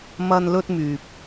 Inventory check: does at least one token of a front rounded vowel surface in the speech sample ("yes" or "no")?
yes